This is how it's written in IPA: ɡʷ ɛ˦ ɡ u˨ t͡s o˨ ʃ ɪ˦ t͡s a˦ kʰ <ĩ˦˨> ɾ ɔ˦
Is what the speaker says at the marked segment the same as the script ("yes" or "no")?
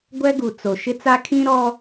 no